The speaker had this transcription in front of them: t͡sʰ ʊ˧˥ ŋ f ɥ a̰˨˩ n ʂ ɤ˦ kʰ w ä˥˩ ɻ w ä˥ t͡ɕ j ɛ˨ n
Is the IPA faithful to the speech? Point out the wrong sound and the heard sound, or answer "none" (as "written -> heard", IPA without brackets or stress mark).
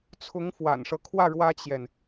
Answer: ɥ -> w